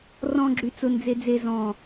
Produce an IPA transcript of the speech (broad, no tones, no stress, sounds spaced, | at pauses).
r ɔ̃ ɡ͡ǁ y t͡s ʊ n d͡z e d͡z e z ɔ̃